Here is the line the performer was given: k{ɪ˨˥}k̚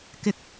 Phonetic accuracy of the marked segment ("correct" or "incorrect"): incorrect